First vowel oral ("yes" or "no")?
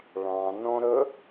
no